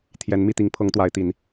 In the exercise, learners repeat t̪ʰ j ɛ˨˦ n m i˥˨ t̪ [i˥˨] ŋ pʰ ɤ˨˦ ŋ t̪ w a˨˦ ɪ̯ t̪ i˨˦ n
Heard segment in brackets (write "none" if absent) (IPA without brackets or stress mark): i˨˦